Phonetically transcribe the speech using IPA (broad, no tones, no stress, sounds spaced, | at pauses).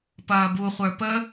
p ɐː b u χʷ ə˞ p ə